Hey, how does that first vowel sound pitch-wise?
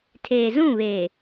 low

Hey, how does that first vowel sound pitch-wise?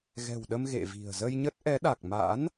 low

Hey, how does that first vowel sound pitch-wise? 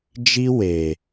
high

